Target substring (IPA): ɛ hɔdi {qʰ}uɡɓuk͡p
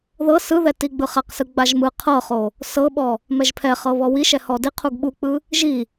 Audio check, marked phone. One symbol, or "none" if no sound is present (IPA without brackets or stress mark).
qʰ